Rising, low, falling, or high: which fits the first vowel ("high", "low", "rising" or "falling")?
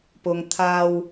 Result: low